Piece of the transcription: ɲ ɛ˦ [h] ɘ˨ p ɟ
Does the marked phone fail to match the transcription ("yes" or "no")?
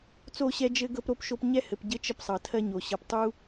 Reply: no